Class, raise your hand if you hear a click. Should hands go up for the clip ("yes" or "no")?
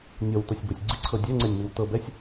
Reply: yes